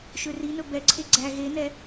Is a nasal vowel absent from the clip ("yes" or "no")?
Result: yes